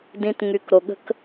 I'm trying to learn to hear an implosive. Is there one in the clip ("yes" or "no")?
yes